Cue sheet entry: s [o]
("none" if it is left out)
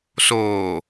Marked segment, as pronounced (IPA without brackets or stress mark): oː